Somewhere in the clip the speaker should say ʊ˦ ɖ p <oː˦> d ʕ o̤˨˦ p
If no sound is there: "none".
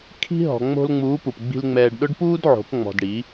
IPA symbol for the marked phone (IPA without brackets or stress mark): uː˦